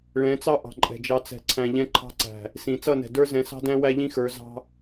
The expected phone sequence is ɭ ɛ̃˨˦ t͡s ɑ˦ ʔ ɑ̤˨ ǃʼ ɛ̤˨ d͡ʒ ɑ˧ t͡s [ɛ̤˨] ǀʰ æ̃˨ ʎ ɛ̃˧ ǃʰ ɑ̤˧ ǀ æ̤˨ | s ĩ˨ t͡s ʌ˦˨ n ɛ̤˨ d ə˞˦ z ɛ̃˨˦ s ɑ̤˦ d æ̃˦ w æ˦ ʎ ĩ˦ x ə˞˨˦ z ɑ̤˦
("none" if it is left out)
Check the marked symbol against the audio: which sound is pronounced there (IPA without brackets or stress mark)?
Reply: ɛ̤˨